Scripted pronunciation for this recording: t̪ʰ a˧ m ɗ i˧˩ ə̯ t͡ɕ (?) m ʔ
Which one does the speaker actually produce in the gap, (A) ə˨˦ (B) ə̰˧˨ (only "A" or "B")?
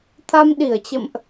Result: B